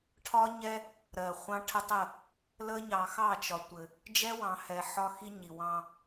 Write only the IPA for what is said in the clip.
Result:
ʈʰ ɒ˦ ɲ ɛ˦ | ɾ ɜ˨ χʷ ɑ̃˦ ʈʰ ə˦ tˤ ə˦˨ | l ə˦ ɲ ɑ˨ x ɑ˦˨ t͡ʃ ɒ˨ tʷ ɘ˨ | d͡ʒ ɛ˦ w ɑ̃˨ h ɛ˨ ħ ɒ˦ x i˦ ɲ i˨ w ɑ̃˦

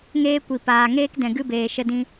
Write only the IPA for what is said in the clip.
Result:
ŋ eː˦ kʷ i˨ p aː˨ ŋ eː˦ k d ɛ̃˨ ɡ ɨ˦ b eː˨ ʃ ə˧ d ĩ˧

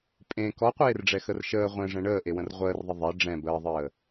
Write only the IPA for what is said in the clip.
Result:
pʼ ẽ k ɔ qʷ eː r ɖ͡ʐ ɛ x ə r ʃ əː ʁʷ ɛ̃ ʐ ɛ̃ ɳ əː ʔ e w ə̃ r ʁʷ əː r ðˤ ə ðˤ ɛ ɖ͡ʐ ɛ̃ b əː ðˤ əː

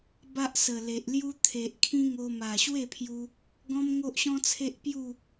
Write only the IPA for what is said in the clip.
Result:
b a˦ ʔ s ə˨˩ l e˨ ʔ l j u˦ t̪ʰ e˨ ʔ kʰ ĩ˦ ŋ o˧ m a˨˩ ɕ w e˥˧ pʰ j u˧ | ɡ ɔ̃˦ m ŋ o˦ ʔ ɕ ɔ̃˦ t͡sʰ e˦ ʔ p j u˥˧

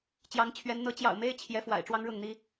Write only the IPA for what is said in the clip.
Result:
t͡ɕ j ɑ˧˥ ŋ t͡ɕʰ ɥ ɛ˧˥ n n̪ ɤ˧˥ t͡ɕ j ɑ̰˨˩ ʊ̯ m e˥ ɪ̯ t͡ɕʰ j ɛ˧˥ f w a̰˨˩ ɪ̯ ʈ͡ʂ w ɑ˥ ŋ ɻ ʊ˥˩ ŋ n̪ i˥

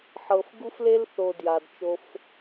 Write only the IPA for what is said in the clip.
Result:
ħ ɤ˨ f ɡ u˥ f l e˥ l θ o˨ d j a˩ d t͡ʃ o˨ f

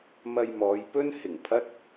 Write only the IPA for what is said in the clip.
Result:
m ɐ˧ j m ɔː˨˧ j p ɵ˥ n h ɪ˨˩ ŋ pʰ ɐ˥ t̚

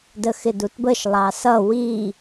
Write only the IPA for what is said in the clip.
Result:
d ə x ɪ d u t b ə ʃ lˠ ɑ s ʌ w i

